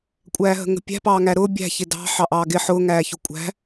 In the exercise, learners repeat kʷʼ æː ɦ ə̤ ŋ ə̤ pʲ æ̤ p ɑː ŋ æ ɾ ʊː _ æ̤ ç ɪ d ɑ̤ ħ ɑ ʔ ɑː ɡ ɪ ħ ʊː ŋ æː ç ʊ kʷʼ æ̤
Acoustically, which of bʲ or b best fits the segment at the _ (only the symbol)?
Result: bʲ